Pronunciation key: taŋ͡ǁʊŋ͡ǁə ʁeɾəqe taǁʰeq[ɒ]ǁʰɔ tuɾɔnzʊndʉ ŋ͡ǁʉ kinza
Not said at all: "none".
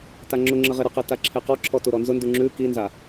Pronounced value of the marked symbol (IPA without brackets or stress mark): ɒ